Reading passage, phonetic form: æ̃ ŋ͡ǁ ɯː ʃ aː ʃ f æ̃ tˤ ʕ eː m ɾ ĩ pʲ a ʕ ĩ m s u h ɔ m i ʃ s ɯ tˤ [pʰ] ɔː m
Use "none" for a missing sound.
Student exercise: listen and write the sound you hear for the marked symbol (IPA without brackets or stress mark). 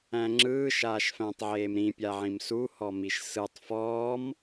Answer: f